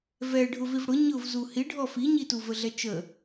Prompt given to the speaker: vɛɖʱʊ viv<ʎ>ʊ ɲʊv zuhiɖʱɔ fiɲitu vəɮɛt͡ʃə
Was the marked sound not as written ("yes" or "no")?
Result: yes